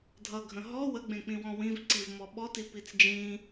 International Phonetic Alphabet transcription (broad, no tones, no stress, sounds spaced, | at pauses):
dʱ ʌ ɡʱ ə̃ ɦ ɔ w ə ɡ͡b ẽ k͡p ĩ w ɔ̃ w ĩ v ǀ i v m ɔ ɓ ɔ t i p i t͡s d͡ʒ ĩ